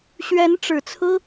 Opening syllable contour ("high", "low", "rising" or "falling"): rising